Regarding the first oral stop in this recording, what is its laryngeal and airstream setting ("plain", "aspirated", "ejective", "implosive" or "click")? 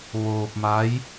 plain